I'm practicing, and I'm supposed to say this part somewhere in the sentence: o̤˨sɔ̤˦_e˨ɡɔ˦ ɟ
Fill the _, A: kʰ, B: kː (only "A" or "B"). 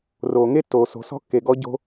B